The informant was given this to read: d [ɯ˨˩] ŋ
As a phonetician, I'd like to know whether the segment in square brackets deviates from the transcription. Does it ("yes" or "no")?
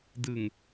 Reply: no